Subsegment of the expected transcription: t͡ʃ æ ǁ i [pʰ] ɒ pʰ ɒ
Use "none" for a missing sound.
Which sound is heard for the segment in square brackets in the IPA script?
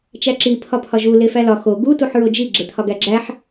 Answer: pʰ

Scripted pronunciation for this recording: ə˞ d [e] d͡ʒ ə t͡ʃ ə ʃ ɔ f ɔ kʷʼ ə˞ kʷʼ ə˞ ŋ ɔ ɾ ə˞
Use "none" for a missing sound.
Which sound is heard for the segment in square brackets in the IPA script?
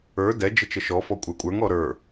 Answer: ɛ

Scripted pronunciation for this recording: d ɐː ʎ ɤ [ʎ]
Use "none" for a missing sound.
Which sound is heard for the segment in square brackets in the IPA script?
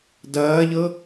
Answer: none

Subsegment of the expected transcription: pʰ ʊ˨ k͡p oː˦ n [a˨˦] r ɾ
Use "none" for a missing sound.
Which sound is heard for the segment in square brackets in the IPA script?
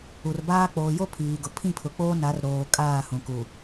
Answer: a˨˦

